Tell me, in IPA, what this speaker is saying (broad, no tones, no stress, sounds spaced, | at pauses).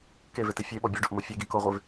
k e v e t i fʲ e ɓ ɔ bʲ ɔ ɖ o ʔ m o fʲ e ɡ i k o ʁʷ e v